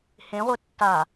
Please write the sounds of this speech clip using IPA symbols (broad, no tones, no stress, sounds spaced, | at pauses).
h ẽ ʁʷ e tː a